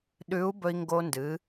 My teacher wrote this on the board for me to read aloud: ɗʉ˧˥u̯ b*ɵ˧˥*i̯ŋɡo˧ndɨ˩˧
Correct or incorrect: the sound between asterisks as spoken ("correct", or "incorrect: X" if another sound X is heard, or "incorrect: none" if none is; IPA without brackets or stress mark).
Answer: incorrect: ɵ˧